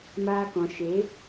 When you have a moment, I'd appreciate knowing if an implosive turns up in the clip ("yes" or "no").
no